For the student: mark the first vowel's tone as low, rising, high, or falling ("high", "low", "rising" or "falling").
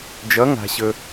rising